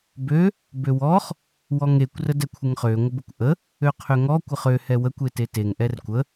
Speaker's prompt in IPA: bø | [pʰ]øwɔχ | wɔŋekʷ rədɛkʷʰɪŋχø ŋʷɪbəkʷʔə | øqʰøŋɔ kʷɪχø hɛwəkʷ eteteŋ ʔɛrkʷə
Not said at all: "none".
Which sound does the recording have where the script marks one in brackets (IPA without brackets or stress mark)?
b